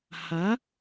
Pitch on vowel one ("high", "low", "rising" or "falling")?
rising